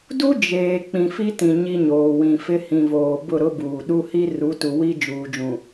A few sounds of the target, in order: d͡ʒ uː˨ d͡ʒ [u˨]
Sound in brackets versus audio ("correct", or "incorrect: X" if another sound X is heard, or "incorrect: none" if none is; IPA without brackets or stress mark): incorrect: ũ˨